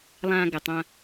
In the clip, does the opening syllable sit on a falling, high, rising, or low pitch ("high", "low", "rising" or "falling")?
low